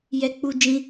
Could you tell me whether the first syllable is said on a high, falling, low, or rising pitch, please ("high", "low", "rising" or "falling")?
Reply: high